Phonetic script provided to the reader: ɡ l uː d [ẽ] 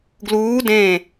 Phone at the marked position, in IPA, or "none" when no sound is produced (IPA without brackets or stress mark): ẽ